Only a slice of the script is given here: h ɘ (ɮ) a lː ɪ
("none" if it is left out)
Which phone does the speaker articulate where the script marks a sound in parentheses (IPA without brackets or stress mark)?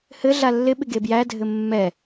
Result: ɮ